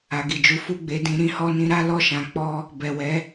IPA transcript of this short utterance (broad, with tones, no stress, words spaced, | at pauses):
a˨ɡi˨d͡ʒu˨˦ fu˦˨ɡ͡be˨˦dĩ˧ ɾĩ˧hɔ˧nĩ˧ɾa˦ lɔ˦˨ʃã˨˦k͡pɔ˦ | bɛ˨wɛ˨˦